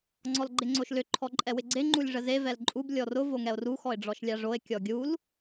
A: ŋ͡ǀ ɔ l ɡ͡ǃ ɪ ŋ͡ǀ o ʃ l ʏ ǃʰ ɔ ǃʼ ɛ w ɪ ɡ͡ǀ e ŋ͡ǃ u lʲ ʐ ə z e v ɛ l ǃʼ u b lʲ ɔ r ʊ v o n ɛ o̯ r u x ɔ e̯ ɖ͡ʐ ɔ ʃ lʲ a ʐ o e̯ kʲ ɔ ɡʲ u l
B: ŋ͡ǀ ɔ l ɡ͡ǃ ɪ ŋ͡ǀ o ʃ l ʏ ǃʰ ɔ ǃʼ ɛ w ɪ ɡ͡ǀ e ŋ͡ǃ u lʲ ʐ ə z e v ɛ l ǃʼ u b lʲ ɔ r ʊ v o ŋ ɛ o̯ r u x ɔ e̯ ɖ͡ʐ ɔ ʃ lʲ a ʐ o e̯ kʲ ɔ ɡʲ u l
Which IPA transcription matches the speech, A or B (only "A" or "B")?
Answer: B